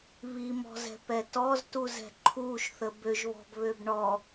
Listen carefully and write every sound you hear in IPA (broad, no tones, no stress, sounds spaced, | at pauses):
β i m ɔ̤ z ɛ̤ p ɛ t ɔ z t u z ɛ̤ ǃʰ u ʃ θ ə b ø ʒ β ɔ̤ b β ø b ɳ ɔ